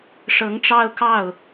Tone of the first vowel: rising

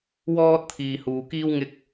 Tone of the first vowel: high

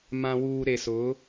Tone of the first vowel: low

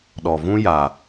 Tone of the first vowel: low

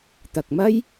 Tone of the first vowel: low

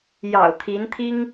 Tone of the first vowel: low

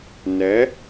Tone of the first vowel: rising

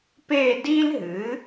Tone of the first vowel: falling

